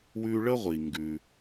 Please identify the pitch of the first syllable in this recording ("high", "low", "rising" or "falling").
high